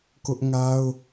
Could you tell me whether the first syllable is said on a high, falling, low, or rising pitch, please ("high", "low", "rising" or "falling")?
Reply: high